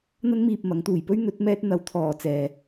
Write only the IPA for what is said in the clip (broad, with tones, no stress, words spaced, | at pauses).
n̪ɐ˧nmiː˨p̚ mɐ˨˥ŋt̪uː˨jpɵ˥ɥ n̪ɵ˨˥t̚ mɛː˧t̚ n̪ɐ˨˥wt̪ʰɔː˨t͡sɛː˨